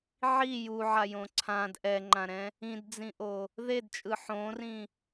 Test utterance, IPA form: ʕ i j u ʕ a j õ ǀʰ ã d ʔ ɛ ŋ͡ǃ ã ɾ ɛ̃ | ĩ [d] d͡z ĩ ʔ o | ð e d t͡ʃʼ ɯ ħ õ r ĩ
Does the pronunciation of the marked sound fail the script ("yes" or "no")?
no